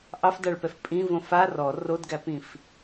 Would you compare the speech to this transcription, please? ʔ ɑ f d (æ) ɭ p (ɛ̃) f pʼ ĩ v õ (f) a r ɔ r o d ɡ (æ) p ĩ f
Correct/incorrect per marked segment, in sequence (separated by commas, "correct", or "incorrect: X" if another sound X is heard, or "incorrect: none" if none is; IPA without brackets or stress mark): incorrect: a, incorrect: ɛ, correct, correct